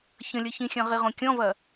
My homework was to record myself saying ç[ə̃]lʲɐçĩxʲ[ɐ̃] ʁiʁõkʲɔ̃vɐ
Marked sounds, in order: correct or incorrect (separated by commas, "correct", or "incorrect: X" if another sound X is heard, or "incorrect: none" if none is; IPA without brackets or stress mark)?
correct, correct